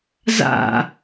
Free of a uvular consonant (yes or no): yes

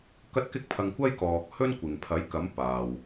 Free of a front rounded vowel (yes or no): yes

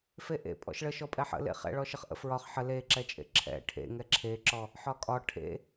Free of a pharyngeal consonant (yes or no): no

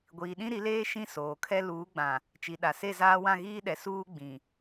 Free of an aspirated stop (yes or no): no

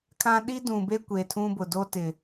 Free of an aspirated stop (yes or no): no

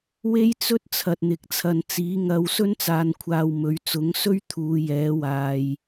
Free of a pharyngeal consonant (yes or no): yes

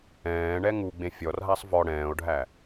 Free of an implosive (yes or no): yes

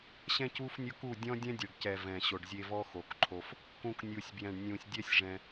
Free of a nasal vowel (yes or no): no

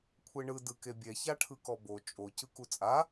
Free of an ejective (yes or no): no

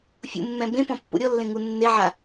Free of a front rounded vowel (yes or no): yes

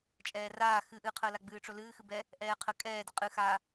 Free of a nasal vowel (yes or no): yes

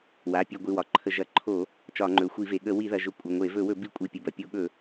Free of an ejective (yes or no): no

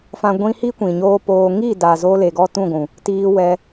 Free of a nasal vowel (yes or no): no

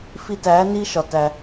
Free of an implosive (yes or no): yes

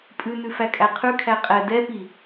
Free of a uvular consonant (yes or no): no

